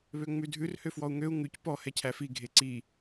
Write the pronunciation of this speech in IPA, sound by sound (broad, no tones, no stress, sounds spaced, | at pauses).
β ø ŋ͡m ʉ dʱ ʉ r h ø f w ɔ u̯ ŋ ø u̯ ŋ ʉ c p ɔ h ɛ cʰ æ f i ɡʱ e ǀ i